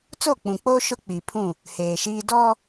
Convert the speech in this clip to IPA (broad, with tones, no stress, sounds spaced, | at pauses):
t͡s o˦˨ k͡p ũ˨ k͡p oː˦ ʃ ʊ˦ k͡p i˨ pʰ ũ˦˨ | h eː˨ ʃ iː˦ d ɔ˦